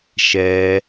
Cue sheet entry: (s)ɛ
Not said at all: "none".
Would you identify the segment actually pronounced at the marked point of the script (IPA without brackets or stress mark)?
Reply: ʃ